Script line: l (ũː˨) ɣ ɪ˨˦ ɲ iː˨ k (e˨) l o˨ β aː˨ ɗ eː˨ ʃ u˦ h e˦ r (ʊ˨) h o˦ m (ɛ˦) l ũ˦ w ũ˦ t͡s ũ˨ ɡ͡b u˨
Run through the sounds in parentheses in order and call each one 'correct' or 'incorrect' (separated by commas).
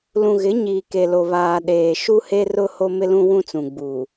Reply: incorrect, correct, incorrect, incorrect